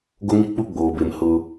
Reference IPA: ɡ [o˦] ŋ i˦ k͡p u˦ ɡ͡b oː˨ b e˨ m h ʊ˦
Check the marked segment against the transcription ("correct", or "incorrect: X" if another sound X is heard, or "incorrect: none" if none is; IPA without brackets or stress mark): correct